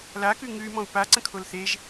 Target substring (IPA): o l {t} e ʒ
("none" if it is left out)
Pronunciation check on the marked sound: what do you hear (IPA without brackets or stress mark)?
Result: θ